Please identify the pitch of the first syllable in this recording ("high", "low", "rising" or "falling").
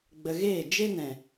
low